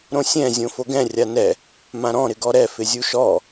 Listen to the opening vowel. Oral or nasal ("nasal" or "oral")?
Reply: nasal